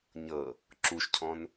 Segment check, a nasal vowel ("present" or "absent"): present